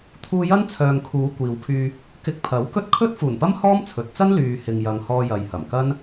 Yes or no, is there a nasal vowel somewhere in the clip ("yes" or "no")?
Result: no